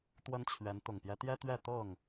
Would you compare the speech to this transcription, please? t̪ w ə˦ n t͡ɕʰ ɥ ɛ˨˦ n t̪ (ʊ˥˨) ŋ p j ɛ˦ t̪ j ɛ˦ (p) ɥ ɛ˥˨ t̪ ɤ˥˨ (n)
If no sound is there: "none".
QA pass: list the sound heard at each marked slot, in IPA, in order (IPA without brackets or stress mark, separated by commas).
ʊ˨˩, t̪, ŋ